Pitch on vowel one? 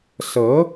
rising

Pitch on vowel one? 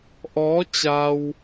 rising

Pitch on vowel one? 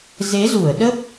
rising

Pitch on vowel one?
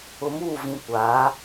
low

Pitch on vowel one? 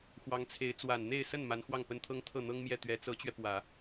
rising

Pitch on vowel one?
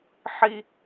high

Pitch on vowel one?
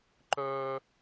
high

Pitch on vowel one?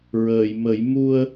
low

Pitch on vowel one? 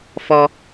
high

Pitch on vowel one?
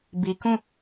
low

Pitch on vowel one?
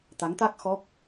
rising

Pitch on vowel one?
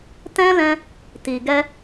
high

